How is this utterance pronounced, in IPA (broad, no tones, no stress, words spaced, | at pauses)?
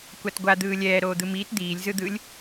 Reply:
kʷatɡʷa d̪ɯːlʲɛː ɾoːd̪ɯmiːt d̪iːlʲ zɯd̪ɯlʲ